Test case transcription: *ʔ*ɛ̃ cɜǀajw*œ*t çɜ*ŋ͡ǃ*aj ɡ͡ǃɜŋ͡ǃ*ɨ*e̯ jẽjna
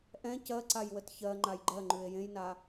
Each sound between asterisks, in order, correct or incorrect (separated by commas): correct, incorrect, correct, incorrect